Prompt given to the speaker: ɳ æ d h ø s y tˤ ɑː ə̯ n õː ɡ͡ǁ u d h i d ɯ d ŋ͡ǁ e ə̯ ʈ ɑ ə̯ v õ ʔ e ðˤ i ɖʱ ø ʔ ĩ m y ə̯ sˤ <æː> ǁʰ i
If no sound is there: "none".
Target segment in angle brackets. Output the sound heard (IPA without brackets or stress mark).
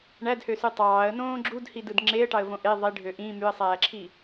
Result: æː